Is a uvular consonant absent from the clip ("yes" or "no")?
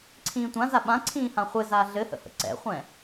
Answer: no